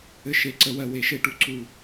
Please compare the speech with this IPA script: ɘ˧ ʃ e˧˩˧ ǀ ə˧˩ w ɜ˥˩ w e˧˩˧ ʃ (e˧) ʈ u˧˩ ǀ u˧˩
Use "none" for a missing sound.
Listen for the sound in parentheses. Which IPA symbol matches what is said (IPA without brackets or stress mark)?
e˥˩